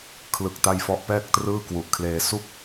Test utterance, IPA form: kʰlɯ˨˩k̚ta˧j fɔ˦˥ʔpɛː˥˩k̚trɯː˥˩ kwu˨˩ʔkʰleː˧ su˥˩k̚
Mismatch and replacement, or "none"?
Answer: none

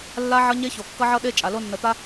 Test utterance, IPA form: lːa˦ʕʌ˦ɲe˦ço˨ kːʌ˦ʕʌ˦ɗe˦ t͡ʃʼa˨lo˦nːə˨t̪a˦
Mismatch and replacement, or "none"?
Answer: none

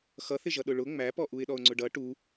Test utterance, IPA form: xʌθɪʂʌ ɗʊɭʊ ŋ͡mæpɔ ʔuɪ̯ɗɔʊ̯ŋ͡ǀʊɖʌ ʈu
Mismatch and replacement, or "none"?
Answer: ʂ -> ʒ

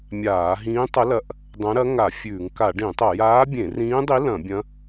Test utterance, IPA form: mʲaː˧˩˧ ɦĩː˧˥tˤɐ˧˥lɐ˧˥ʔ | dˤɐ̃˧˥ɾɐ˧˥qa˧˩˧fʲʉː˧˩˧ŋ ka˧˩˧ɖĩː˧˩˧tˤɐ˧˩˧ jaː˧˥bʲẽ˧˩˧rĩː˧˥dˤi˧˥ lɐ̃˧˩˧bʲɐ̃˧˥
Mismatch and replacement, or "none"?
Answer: q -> ŋ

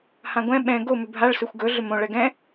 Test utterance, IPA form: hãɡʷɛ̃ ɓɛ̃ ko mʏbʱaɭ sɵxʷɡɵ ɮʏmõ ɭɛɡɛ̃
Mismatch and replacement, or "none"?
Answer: k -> ɡ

